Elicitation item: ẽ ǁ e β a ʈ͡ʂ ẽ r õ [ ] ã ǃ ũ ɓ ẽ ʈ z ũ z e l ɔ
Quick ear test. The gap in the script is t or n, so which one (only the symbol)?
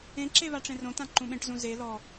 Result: t